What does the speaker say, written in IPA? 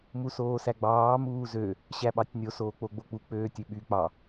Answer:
m u s oː s æ ɡ͡b ɑː m uː z ø | ɕ æ ɓ ɑ tʲ nʲ o s oː k͡p o ɡ͡b o k͡p u k͡p øː tʲ ø ɓ y k͡p ɑ

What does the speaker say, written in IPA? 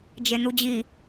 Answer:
d͡ʒ e n̪ u d͡ʑ i

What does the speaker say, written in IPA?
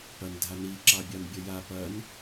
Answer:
p ɐ n dʱ a n i ǁ ɑ bʲ ɑ n bʲ ɐ j a p ɐ n

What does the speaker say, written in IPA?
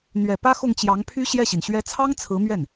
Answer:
n̪ ɥ ɛ˨˩ p ä˥ x ʊ˥˩ ŋ t͡ɕ j ɑ˧˥ ŋ pʰ y˥ ɕ j ɛ˥˩ ɕ i˩ n ɕ ɥ ɛ˧˥ t͡sʰ ɑ˥ ŋ t͡sʰ ɹ̩˧˥ m ɥ ɛ˥˩ n

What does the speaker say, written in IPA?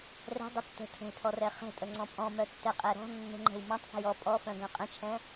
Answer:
r ɛ̤ dˤ ə tː ə̤ tʰ ɛ̤ pʰ ɔ r ɛ χ ɛ̤ tʼ ə ŋ͡ǀ ɔ̃ pʼ ɔ̃ m œ tː ɛ qʼ ɛ ɾ ɔ̤ nː ə̤ ŋ͡ǃ ɛ̤ w m ɔ̃ tˤ f ə̤ j ɔ pʼ ɔ f œ̃ ɡ œ̃ qʼ ə̃ t͡ʃʰ ɛ̃

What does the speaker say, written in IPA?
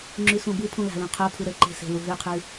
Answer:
ŋ͡ǁ ʉ s ũ b ɯ pʰ ũ l a̤ l ũ qʰ o pʰ ɯ ɾ ə ǃ e̤ s e̤ l u ɦ ʉ qʰ ʉ

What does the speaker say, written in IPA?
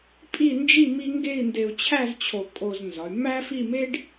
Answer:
pʼ i˥˧ n d͡ʒ i˥˧ m i˥ ŋ ɡ e˥˧ i̯ n d e˧ u̯ t͡ɕʰ æ˥˧ z t͡ɕʰ o˧˩ kʼ o˧ z n z ɒ˩˧ y̯ m æ˥ f i˥˧ m e˥ ɖ

